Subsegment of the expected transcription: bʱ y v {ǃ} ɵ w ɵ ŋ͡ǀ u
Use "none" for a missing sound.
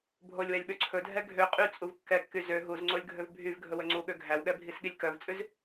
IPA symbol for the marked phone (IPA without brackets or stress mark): ɡʱ